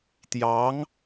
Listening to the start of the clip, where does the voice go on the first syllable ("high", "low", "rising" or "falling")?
rising